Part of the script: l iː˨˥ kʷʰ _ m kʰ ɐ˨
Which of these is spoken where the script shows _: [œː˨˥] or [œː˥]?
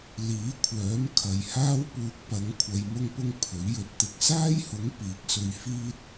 œː˨˥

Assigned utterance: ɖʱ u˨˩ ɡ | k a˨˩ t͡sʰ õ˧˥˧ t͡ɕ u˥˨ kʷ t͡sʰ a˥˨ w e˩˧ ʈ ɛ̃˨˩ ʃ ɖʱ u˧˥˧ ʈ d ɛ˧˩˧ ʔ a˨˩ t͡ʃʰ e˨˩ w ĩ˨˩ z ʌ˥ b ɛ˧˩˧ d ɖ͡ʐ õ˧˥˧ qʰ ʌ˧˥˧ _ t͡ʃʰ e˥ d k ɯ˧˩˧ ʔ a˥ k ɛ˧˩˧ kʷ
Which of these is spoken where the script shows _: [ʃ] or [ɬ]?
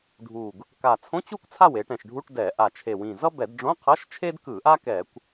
ʃ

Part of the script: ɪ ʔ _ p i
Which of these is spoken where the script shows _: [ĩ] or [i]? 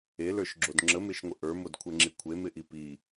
i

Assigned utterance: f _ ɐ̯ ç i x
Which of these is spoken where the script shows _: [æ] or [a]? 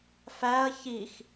æ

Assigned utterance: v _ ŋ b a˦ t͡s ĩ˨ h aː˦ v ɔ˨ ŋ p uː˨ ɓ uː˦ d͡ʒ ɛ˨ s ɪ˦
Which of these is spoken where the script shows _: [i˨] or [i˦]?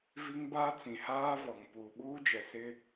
i˦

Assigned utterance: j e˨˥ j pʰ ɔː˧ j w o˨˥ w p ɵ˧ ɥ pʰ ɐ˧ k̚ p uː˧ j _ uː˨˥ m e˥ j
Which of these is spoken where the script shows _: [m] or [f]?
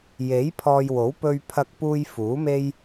f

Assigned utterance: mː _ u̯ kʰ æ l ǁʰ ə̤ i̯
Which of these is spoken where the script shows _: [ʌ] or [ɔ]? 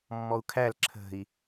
ɔ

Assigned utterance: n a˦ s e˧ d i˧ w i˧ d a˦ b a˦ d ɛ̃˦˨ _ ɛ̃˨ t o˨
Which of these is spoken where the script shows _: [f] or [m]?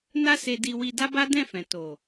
f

